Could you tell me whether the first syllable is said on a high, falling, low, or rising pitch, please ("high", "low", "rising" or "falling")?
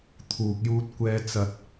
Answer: low